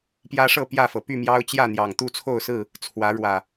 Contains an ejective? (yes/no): no